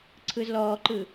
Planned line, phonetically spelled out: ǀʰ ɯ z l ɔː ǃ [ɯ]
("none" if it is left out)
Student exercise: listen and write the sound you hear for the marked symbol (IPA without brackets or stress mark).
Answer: ɯ